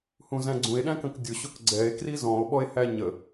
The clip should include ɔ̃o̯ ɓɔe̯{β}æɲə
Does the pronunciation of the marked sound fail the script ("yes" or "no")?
yes